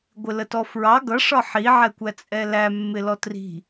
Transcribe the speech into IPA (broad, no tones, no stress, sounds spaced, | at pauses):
ɡʷ ɪ l ə t ɔ f ɹ ɑ ɡ ʌ ʂ ɒ ħ i ʕ ɛ kʷ æ t͡sʼ ɛ l æ mː ɪ l ɔ t r i̤